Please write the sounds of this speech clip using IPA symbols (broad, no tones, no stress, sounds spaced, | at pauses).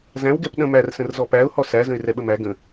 z æ̃ w ɡ ɛ p ɗ ə̃ m æ r s ə̃ r z ɔ p æ ʊ̯ h ɔ s æ z ə̃ ɪ̯ r ɛ ɓ ə m æ ɡ ə̃